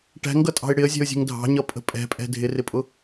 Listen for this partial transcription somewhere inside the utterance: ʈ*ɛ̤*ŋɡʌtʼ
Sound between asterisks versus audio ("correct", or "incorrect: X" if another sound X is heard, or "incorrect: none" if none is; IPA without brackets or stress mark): incorrect: æ̤